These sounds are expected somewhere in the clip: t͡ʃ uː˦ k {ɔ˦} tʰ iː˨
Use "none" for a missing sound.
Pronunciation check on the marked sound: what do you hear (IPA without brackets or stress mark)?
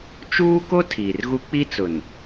o˦